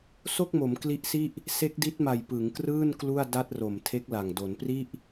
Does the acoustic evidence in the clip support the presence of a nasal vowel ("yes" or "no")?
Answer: no